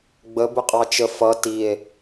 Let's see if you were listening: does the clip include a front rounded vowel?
no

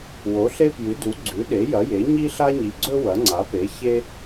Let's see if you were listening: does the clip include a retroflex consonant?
no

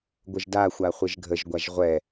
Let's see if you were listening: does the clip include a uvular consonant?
yes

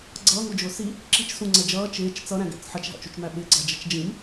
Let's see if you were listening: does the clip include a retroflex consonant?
no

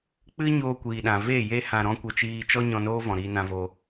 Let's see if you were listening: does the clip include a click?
no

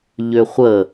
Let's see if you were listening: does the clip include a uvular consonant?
yes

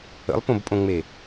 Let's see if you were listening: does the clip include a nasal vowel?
yes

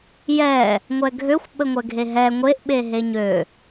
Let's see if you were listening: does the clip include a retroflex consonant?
no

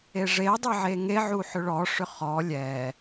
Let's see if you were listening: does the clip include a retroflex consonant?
yes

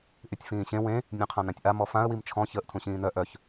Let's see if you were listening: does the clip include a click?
no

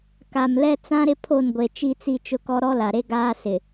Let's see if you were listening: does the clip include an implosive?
no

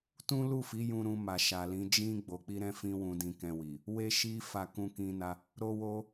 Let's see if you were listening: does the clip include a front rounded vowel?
no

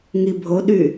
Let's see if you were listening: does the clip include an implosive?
yes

